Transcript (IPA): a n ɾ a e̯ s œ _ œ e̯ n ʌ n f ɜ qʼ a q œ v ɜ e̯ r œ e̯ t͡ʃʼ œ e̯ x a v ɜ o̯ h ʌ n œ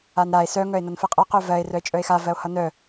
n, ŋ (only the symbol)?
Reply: ŋ